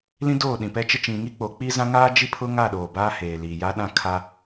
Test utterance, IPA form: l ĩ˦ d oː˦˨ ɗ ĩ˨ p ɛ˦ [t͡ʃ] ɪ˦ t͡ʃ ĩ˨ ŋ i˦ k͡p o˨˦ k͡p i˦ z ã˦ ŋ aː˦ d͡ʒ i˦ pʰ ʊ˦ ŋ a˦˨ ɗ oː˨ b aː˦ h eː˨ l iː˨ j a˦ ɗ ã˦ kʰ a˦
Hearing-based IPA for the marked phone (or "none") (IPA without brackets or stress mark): t͡ʃ